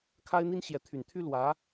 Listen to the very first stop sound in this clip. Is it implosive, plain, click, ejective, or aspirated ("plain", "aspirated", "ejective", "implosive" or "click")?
aspirated